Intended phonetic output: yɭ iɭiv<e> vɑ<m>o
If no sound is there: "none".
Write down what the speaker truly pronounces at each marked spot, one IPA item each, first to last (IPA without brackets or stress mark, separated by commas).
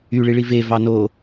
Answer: e, n